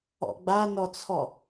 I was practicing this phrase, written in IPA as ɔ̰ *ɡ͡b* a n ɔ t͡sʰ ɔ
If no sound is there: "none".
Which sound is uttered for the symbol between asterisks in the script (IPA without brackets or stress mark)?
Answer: ɡ͡b